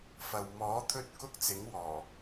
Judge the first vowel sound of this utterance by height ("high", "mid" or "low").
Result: low